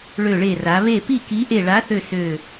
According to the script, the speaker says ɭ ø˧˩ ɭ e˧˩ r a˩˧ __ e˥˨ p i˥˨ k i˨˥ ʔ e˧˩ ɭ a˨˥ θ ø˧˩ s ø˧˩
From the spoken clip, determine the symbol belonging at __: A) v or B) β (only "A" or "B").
B